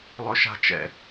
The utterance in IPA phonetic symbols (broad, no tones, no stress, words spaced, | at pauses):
lˠɵʃa̤ t͡ʃɛ̰